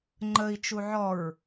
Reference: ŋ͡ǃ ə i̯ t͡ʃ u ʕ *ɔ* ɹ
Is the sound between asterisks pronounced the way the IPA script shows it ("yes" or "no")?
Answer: yes